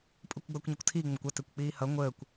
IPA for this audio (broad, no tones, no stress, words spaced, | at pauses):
pʼukʷɡ͡bʌːkʷɲʌkʷtʰiː ŋ͡məkʷʌ tekʷk͡piːhʌ ŋʷəːkʷ